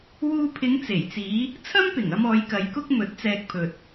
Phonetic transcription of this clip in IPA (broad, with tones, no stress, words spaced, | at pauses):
wuː˧pʰɪ˨˧ŋt͡se˨˩jt͡siː˨˧ | t͡sʰɐ˥mpɪ˨˩ŋɐ˧m ɔː˨˧jkɐ˨˧jkʊ˥k̚ mɵ˨˥t̚t͡sɛː˧k̚ pʰɵ˨t̚